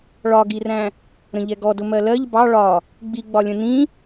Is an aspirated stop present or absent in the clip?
absent